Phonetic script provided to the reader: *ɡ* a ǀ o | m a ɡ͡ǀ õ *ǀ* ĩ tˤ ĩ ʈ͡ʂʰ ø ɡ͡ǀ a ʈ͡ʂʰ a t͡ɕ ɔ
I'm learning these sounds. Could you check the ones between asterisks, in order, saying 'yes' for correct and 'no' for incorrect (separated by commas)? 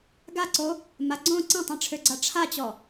yes, yes